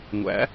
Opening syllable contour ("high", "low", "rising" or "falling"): rising